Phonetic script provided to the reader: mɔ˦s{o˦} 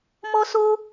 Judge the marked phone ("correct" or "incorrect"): correct